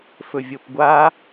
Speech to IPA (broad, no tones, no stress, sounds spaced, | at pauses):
f ɵ vʲ o p ɡʷ a